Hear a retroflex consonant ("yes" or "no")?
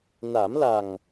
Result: no